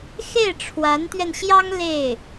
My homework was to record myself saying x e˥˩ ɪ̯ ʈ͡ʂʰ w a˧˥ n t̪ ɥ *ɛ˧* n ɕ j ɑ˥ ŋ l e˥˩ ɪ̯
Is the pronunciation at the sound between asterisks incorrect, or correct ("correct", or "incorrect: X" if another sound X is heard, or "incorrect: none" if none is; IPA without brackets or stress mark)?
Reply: correct